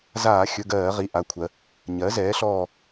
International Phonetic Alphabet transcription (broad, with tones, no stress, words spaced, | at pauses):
zaː˧˩˧xʲɵ˩˧˩ ɡɜː˧˩˧ʁi˩˧˩ ʔa˩˧˩kʷʰɜ˩˧ | ɲɜ˩˥zɛː˩˥ɬɔː˦˨